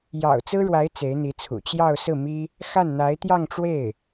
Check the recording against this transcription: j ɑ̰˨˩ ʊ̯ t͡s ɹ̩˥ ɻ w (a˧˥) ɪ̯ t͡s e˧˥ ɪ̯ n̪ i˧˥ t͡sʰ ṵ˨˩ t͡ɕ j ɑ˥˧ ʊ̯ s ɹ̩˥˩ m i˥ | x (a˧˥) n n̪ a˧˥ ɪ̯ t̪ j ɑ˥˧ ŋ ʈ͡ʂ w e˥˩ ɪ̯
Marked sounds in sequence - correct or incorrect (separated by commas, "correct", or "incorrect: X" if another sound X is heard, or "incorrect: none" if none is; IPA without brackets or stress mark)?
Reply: correct, incorrect: a˥˩